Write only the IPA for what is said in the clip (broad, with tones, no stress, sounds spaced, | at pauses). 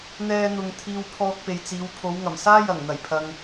n̪ ɛː˥ n̪ ʊ˧ ŋ t̪ʰ iː˧ w pʰ ɔː˧ k̚ p e˨ j t͡s iː˨˧ w pʰ o˨˧ w ŋ ɐ˨˩ m s aː˥ j ɐ˨˩ ŋ n̪ ɐ˨˩ j pʰ ɐ˨ ŋ